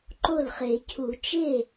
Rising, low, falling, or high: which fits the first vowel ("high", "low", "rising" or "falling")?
falling